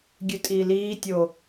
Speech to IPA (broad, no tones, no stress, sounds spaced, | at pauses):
ɡʲ ʉ tʼ iː l iː tʲ o